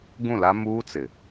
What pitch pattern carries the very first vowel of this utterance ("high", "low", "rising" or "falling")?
falling